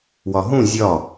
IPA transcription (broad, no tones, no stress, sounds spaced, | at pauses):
w ɒ ɦ ũ zʲ ɒ